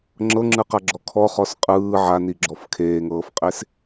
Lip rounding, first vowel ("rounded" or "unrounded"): unrounded